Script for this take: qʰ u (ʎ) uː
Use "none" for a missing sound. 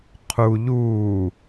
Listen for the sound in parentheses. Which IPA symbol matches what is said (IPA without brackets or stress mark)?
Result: ʎ